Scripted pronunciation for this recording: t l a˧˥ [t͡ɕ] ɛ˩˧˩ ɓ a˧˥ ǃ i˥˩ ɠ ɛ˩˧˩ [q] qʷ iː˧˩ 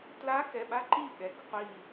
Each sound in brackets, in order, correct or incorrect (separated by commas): incorrect, incorrect